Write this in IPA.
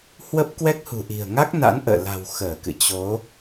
hwə˦˥p̚kwɛ˦˥k̚hṳ˨˩ʔi̤˨˩ə̯ ŋa˦˥k̚ na̰˧˥nʔə̰ː˧˨la̤˨˩w xəː˧˩kɨ̰˧˨ t͡ɕo˨˦

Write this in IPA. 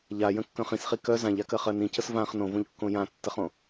ʎajə̃kːœ̃ χĩsχi kœ zãʎakɜχɜ nĩcəs vãχ nõvõʎkːõ jãtːəχõ

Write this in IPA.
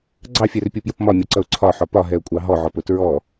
ɡ͡ǀɑfʲɛrpʲupjʊp mɒmʲɔǀʌʊ̯ ǀʰɒħɒ pɒɦɛʊ̯kʷʼɑ ɦɔʕɔpʊ tɹɔ

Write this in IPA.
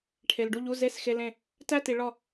ʈʰe˨lɖu˥˨ʎu˧˥˧ ze˥˨sxe˧˥˧lẽ˥˨ | tæ˥˨ti˨ ɭɒ˥˨

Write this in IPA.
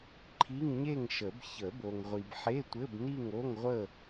ǃʰi˧˥˧ŋɲe˥˨ŋ ʃə˨˩˦b çə˨˩˦bo˨ŋʁʷi˨bħe˧˥˧ tʷɘ˧˥˧bni˥˨ŋ o˧˥˧ŋʁʷə˥˨

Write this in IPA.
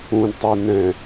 ũdtˤe nɛ̃

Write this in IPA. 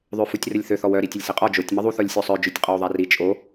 ðˤøfutʲrəlʲθøθ ɔwœ ɾitʲəlʲsiqʼɔ d͡ʒotʲ məðˤuθ ɔlʲsʲosˤœ d͡ʒøtʲqʼɔwðˤari t͡ʃʼo

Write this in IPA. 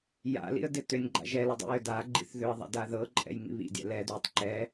ja̰lḭə̯ dɪtʏnʲɡ͡ǃa̰ ʒɛlɪ dˤḭjʏdaɡ͡ǃḭθ ðʏə̯ðˤa̰d aðɤǃʼɛ̰j ŋḭβḭdʲɛ̰ lɛdwitˤ ǃɛ

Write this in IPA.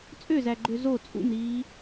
t͡sʼøzæɡ͡ǃø zo t͡sʼṵmɾiː

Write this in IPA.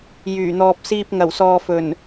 jyː˨˩n̪ɔː˨p̚siː˧p̚ ŋɐ˨˩wsɔː˨fɵ˨˩n

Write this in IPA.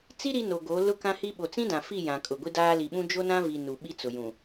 t͡si˦ ɾi˦no˨ɡo˨˦ lʊ˦kã˦hi˦ ɓo˨t͡sĩ˦dã˨ fi˦˨jã˨ kʼʊ˨ɡʷi˦daː˦ li˨ɓũ˦ d͡ʒo˦nã˦vi˨ nu˨ ɓi˦t͡sʊ˨ jũ˨

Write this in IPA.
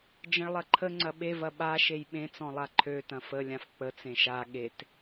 d͡ʒə̃ɭlˠɐǃʰə ŋ͡ǀɐɓevɐ ɓa ʃejɓẽt͡sɔ̃lˠa ǃʰøtɐ̃ fəlʲãf k͡pə t͡sẽʃa ɠet

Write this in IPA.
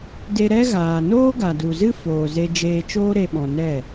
de˧ ɾɛ˦ɣaː˨ noː˦ɡa˨du˨zɨ˦ foː˨ze˧ d͡ʒeː˧t͡ʃoː˦ ɾe˦ɓɔ̃˧ nɛ˦˨

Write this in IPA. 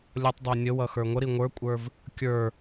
lʲʌtˤdˤə˞ nʲəwʌ xə˞ŋʷəɾi ŋʷə˞kʷʼə˞v | kʲə˞

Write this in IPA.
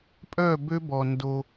pʼœ˦˨bø˦bɔ˨ ndo˦

